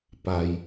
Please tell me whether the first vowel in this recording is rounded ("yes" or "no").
no